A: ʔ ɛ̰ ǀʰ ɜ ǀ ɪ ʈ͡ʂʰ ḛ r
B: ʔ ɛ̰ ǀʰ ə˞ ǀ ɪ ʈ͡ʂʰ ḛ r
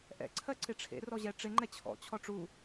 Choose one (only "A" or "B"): A